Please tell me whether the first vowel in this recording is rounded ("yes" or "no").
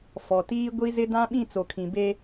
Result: yes